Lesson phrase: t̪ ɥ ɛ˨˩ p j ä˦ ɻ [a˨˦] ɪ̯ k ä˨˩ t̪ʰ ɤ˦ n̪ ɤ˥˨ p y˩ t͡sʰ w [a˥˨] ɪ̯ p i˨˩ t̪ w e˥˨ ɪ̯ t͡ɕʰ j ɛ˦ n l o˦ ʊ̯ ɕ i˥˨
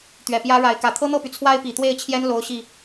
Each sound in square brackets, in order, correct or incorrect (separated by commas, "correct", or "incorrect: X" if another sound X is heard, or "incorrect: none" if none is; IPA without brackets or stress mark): correct, incorrect: a˦